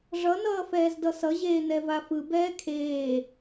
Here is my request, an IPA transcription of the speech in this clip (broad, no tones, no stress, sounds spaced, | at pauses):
ʐ ʌ n ʌː f ɛː z d ʌ s ʌ ʑ eː n ɛ v a f ɯ b ɛː kʰ eː